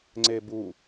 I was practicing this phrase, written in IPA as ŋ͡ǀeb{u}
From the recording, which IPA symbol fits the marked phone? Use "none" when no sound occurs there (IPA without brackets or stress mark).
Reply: u